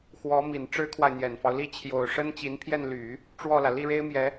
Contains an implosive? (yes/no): no